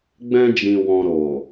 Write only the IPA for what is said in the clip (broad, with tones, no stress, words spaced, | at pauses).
ɡ͡bɛ̃˧d͡ʒĩ˨ wɔ̃˨ɾo˨